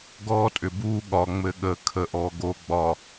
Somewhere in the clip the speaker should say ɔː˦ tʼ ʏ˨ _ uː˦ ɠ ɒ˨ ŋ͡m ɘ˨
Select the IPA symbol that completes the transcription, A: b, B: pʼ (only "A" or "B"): A